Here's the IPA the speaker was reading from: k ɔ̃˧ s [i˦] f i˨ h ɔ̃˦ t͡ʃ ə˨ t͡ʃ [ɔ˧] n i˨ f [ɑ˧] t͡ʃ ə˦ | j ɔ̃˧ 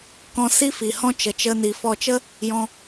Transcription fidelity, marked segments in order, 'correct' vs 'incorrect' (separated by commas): correct, incorrect, incorrect